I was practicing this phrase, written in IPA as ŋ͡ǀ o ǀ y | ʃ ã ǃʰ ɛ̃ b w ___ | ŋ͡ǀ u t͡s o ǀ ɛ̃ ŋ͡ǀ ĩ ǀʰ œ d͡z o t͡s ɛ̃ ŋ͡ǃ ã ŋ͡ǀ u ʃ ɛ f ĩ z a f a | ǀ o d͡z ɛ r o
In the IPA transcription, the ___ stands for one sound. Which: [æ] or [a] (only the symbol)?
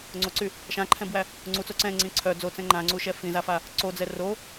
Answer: æ